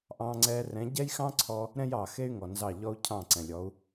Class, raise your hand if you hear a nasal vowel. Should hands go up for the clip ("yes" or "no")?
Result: yes